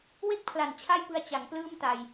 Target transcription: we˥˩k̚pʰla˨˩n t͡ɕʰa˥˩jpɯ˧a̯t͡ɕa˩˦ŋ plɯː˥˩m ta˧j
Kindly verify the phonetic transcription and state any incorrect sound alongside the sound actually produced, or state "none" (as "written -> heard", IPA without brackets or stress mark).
none